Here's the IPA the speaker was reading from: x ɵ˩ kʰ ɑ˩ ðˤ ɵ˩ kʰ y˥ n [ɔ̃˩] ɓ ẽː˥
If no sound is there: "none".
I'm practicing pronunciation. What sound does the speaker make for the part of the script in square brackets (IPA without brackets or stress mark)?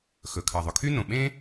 õ˩